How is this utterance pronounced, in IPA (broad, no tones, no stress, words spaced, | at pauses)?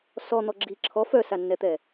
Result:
sɔn̪ɔ ɡ͡ǁi ǁʰɔ fœsanːɛt̪ɛ